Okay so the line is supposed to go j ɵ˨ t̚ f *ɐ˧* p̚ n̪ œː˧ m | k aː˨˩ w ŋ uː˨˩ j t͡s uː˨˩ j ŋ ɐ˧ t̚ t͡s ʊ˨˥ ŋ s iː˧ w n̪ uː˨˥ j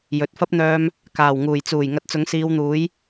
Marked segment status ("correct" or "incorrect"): incorrect